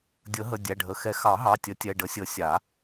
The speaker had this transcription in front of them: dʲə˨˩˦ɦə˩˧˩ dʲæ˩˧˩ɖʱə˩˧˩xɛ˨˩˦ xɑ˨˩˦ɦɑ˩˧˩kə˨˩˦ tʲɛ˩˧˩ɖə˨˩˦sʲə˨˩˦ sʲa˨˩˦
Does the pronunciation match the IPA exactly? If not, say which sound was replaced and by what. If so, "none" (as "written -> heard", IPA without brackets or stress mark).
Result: k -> tʲ